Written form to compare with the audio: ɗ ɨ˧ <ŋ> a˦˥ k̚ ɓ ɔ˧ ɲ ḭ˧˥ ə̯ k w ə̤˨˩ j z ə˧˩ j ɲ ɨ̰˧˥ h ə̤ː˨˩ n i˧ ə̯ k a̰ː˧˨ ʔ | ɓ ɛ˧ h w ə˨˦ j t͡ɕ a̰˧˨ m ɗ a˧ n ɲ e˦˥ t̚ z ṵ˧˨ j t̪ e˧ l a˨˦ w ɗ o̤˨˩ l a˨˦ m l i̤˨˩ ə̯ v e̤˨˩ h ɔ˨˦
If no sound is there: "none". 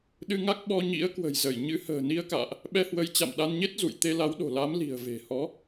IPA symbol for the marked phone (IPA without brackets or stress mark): ŋ